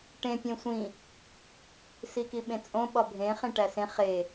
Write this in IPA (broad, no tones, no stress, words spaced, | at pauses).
ʈẽ pʲẽsʷĩ | sikiɓẽt͡sʼõ ɓɒbʱẽ χẽʈæsẽ χe